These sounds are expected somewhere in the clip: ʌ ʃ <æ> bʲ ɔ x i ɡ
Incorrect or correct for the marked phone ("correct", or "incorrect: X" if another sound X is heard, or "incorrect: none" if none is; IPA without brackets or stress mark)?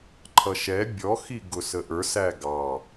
incorrect: ɛ